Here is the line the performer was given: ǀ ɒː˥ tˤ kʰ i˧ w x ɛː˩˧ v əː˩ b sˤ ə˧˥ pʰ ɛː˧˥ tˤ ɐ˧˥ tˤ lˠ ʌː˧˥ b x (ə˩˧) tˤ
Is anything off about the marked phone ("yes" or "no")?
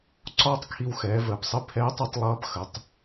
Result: no